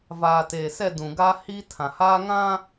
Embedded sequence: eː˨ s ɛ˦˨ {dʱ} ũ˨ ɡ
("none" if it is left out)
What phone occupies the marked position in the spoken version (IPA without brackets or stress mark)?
d